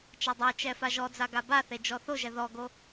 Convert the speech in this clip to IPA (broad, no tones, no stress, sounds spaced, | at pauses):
t͡ʃ a dˤ ɛ t͡ʃ ɛ f a ʒ ɔ d͡z a ɡ a b a θ e d͡ʒ ɔ θ o ʒ ɛ ð ɔ ɡ o